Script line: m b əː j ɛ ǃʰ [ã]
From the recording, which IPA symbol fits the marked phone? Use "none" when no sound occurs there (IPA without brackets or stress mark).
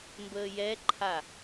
a